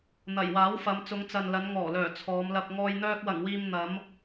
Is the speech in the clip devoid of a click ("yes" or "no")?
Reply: yes